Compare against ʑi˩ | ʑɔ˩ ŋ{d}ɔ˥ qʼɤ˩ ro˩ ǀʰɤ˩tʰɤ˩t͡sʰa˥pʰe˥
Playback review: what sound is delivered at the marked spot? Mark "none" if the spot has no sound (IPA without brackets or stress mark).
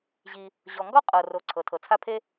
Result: ɡ